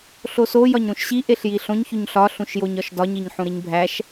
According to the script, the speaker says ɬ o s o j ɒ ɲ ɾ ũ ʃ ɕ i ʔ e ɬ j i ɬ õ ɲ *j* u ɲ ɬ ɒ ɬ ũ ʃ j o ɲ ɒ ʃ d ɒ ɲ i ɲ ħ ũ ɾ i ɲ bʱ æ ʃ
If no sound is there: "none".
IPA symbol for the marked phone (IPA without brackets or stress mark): ç